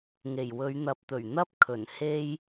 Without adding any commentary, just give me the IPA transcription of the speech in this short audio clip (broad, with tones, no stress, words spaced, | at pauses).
ŋe˨˩jwɵ˨˧ɥn̪ɐ˨˥p̚ t̪ɵ˨˩ɥn̪ɐ˥p̚kʰɵ˨˩n he˥j